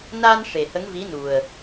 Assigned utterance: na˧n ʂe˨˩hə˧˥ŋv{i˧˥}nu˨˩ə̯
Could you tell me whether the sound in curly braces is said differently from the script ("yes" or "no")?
no